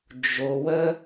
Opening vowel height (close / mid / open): mid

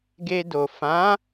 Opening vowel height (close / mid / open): mid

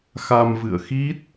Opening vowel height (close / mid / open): open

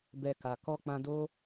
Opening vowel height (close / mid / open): mid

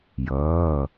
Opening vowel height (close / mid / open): mid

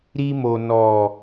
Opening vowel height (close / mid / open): close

